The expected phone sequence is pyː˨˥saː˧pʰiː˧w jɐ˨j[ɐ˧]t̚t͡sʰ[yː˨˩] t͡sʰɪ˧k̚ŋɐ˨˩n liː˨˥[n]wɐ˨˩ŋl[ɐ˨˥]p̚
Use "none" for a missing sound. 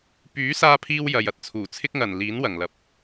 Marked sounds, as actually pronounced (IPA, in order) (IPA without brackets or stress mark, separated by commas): ɐ˧, uː˨˩, n, ɐ˨